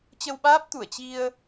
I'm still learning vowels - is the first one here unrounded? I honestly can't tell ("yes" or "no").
yes